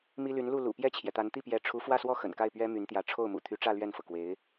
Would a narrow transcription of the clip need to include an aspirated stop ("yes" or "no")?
yes